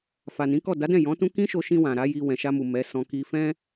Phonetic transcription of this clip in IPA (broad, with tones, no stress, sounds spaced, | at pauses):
f a˨ n ĩ˨˦ k ɔ˦˨ d a˨˦ d ɛ̃˦˨ j ɔ̃˨˦ t ũ˦ k ĩ˦ ʃ o˧ ʃ ĩ˧ w ã˨ ɾ a˨˦ j i˧ w ɛ̃˨ ʃ a˧ m u˨ m ɛ˨˦ s ɔ̃˧ k i˧ f ɛ̃˦